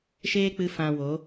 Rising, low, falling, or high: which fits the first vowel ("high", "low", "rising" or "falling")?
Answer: high